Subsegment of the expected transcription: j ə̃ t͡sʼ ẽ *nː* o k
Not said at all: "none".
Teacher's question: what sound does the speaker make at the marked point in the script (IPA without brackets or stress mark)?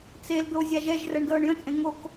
ŋ